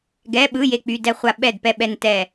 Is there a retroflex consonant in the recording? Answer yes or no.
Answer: no